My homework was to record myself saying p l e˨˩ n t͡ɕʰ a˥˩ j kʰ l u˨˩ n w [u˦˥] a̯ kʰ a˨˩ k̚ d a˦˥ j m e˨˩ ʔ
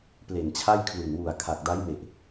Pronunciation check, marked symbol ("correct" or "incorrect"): incorrect